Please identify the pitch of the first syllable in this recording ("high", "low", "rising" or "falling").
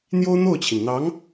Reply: high